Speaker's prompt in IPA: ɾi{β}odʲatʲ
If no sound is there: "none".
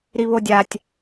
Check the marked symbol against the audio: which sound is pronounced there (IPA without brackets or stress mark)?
β